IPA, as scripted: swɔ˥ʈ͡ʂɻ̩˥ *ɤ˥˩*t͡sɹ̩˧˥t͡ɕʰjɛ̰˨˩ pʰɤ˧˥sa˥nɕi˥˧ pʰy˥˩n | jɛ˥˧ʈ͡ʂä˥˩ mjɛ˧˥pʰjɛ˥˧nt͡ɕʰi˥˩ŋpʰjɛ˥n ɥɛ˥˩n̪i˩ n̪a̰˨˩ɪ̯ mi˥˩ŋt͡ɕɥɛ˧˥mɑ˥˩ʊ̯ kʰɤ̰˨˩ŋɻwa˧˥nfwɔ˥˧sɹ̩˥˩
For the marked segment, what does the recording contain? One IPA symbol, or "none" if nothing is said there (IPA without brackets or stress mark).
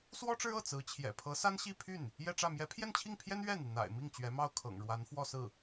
ɤ˥˩